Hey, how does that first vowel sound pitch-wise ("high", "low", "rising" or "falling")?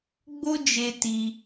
high